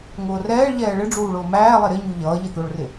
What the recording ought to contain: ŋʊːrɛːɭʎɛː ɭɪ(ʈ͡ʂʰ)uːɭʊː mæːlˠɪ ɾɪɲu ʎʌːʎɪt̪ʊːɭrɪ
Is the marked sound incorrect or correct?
incorrect